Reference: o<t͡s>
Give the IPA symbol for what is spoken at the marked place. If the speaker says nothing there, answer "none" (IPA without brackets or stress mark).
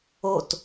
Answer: t